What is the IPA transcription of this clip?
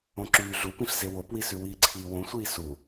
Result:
õǁyːɮupĩɬ zewopwisʉ wiːǀʰiːwõsʷiː su

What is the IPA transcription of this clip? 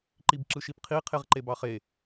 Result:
ǃibǁɯʃipqʰi qʰeʁǃebɑχe

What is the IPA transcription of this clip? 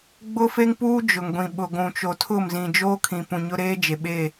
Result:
ɡ͡bʊ˦fe˦ŋpuː˦ d͡ʒʊ˨ŋɡʷĩ˨ɓʊ˨ ɡʷũ˨t͡ʃo˨tʰʊ˦˨m zĩ˨d͡ʒoː˦ kʰĩ˨pũ˨ɲʊ˦ ɾeː˦d͡ʒe˨ɓe˦˨

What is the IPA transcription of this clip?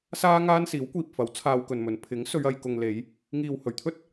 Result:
saː˥ ŋaː˥nsiː˨˥wkʷiː˨p̚fɐ˨˥w t͡sʰaː˧wkɵ˨nmɵ˨˧n pʰɪ˨˥ŋ sɵ˨˧ɥɐ˨jkʊ˨ŋ le˨˧j | ŋiː˨whɵ˨˩ɥt̪ʰɵ˥t̚

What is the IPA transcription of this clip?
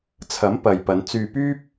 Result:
t͡sʰɐ˨˥m pɐ˨jpɐ˨˧n t͡syː˧pyː˥p̚

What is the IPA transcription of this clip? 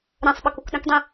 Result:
ɾɛ̃sˤɓʌk ukɗə̃kdˤĩ

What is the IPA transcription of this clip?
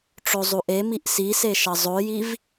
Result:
ʈ͡ʂozˤuʔemiʔ sise ʃʌzˤojiv

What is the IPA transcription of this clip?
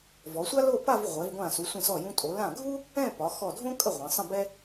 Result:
vɔ˩˧sʷa˥ lo˥˧pa˥˧v ʁʷɛ˩˧vɡʷã˧˩ su˩˧sʷə̃˧˩sɔ˧˩ jũ˧tʼo˩˧ lã˧˩ ɡʱu˥ | ɛ̃˥˧ pɒ˩˧ xɔ˧˩dʱõ˥ kʼə˥˧ʁʷɛ̃˩˧sˤə̃˥˧bɛ˥

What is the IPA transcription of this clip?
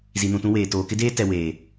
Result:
zi˨nũ˨tũ˦weː˨ toː˨kɪ˦deː˦ tɛ˨weː˨

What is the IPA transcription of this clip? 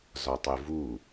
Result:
zɒtˤɪvu

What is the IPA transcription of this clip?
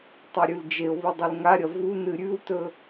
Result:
tˤiɾʲʉld͡ʒeo̯βɨ dˤɵlŋaɾʲɐ vu nɨɾʲʉwtɵ

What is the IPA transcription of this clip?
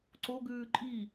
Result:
ǀoɡʉː ǃʼi

